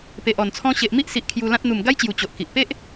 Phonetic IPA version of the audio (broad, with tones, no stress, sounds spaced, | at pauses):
p e˨ ʔ ɔ˨˩ n t͡sʰ ɔ̃˧ ɕ e˨ ʔ m i˦ ʔ s i˨ ʔ kʰ j u˧ l ã˦ t̚ n̪ u˨˩ m ɡ a˦ j t͡ɕ j u˨˩ t͡ɕ o˨ ʔ k i˨ ʔ p e˦ ʔ